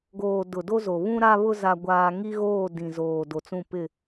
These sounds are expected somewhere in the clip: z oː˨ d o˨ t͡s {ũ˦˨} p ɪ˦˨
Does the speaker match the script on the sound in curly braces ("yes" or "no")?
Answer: yes